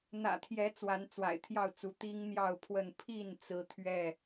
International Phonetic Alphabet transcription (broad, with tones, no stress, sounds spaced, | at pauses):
n̪ ä̰˨˩ t̪ʰ j ɛ˨˦ t͡s w a˨˦ n t͡s w a̰˨˩ ɪ̯ t̪ʰ j ɑ˥˨ ʊ̯ t͡s u˨˦ t̪ i˦ ŋ n̪ j ɑ˥˨ ʊ̯ pʰ w ə˥˨ n pʰ i˥˨ n t͡s ɹ̩˦ t̪ʰ ɥ ɛ˥˨